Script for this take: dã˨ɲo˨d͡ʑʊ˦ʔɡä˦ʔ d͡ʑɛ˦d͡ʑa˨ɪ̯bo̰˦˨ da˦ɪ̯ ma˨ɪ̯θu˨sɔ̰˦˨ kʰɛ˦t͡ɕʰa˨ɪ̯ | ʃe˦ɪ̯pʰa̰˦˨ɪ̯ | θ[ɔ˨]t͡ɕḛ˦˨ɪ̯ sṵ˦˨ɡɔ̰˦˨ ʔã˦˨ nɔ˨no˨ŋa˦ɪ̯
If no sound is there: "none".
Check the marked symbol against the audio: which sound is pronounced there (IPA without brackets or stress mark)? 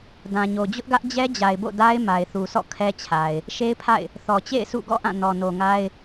ɔ˨